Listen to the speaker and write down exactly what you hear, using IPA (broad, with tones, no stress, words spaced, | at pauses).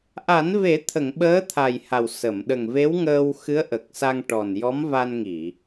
ʔa˨˩˦nve˨˩˦t̪ʰə˨˩˨ŋ ɓəː˧˥ t̪ʰa˨˩jha˨˩w sə˨˩˨m ɗə˨˩ŋve˧˥wŋəː˧wxɨ˧˥ə̯ ʔə˨˩k̚sa˧ŋ ʈɔ˨˩n jɔ˧˥mva˧nŋi˨˩˨